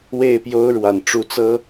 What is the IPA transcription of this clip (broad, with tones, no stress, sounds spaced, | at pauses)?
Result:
w e˥˩ ɪ̯ p j o˥ ʊ̯ ɻ w a˨˩ n ʈ͡ʂ u˧˥ t͡s ɤ˥